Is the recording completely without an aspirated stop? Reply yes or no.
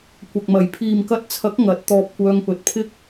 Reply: no